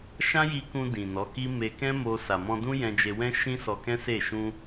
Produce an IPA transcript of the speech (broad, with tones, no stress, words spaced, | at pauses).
ʃã˦ji˧ kũ˧ dĩ˨nɔ˨˦ki˦ me˧kɛ̃˦mo˧ sa˨mɔ̃˧dũ˦ jɛ̃˧d͡ʒe˧wɛ̃˦ ʃĩ˦sɔ˧kɛ̃˦se˦˨ ʃũ˧